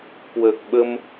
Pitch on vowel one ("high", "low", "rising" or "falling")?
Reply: low